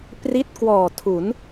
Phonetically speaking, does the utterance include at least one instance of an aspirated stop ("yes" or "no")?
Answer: yes